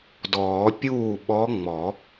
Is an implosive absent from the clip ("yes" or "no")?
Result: no